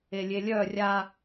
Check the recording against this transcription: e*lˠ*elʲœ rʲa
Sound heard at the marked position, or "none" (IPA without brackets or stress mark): lʲ